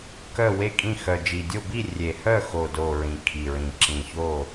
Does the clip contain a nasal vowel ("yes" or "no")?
yes